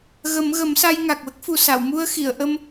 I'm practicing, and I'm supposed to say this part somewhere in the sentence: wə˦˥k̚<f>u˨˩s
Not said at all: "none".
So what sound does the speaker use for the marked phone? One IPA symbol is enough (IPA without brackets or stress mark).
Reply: f